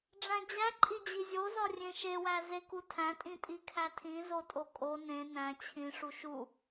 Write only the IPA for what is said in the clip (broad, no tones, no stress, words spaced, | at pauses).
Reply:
ɖ͡ʐæ̃d͡ʑæǃʼid͡ʑi zʲozɒ rʲẽʃewæ zekutʰæ̃tʼĩ tʼikʰætʰĩzo tʼokʼo nẽ næ̃ t͡ɕʰĩʂu ʃu